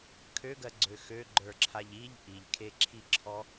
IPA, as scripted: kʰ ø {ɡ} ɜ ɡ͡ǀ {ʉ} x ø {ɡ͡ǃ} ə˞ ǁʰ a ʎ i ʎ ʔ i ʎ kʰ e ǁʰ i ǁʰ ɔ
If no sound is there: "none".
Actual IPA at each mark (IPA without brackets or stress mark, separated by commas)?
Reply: ɡ, ø, ɡ͡ǃ